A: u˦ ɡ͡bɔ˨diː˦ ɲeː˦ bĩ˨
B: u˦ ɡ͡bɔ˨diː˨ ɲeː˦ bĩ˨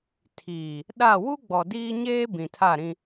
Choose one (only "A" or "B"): A